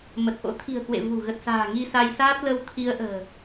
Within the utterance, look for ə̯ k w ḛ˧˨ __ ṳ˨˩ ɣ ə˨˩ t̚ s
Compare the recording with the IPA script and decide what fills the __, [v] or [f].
v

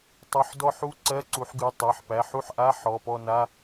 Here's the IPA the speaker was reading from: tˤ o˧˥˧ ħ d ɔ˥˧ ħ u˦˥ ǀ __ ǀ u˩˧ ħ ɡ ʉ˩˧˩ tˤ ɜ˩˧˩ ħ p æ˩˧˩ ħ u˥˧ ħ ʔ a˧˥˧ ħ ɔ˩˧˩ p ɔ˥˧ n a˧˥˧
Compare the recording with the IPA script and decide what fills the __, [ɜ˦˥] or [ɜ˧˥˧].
ɜ˧˥˧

